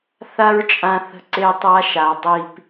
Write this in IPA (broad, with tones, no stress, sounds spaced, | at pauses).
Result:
θ a˦ ɹ t͡ʃʼ ã˧ θ ə̤˧ ǀ e˧ tˤ a˧ ʃ a˨ dˤ i˧ p